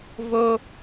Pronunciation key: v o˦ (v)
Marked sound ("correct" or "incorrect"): incorrect